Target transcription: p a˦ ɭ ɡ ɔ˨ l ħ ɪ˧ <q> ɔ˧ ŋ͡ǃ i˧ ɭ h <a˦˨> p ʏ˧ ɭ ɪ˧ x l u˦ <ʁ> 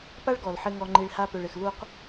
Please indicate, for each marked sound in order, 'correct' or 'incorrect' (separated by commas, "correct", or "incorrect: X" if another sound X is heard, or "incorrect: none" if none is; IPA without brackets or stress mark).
incorrect: ŋ, incorrect: a˦, incorrect: q